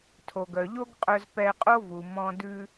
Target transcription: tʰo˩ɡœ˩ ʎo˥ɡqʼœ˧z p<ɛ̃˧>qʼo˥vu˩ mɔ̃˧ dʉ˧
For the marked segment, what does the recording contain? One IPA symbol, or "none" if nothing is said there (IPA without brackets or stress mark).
ɛ˧